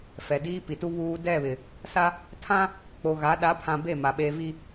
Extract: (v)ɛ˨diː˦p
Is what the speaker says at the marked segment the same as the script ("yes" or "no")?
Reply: no